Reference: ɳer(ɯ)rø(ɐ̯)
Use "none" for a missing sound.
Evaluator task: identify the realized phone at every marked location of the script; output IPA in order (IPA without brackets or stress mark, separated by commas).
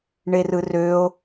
ɯ, o̯